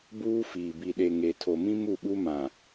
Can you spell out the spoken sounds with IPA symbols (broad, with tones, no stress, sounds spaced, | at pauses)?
b uː˦ f iː˨ b i˨ ɗ e˨ ŋ e˨ tʰ o˨ m ĩ˦ m u˦˨ ɓ u˦ m ã˨